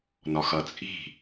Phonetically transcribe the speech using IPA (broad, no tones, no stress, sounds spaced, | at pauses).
n ɒ x ʌ t͡sʼ i̤